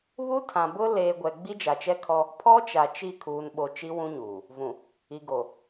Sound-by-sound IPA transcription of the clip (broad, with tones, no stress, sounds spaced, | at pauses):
β u˦ tʰ ã˨ b ʊ˦ l eː˨ ɡʷ ɛ˨ ɡ͡b i˦ d͡ʒ a˨ t͡ʃ ɛ˦ kʰ ɔ˦ | pʰ ɔ˦ t͡ʃ a˨ t͡ʃ i˦˨ kʰ uː˨ n ɓ o˨ t͡ʃ i˦ w ũ˦ ɲ uː˨ | v ũ˨ | i˨ ɡ o˨